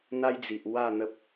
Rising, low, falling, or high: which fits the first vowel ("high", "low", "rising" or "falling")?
high